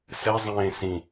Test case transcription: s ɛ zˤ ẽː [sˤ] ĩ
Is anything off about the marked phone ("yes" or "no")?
yes